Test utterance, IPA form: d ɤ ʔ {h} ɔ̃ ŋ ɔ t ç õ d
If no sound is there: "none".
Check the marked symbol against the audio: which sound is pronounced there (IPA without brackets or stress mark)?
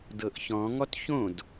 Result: ç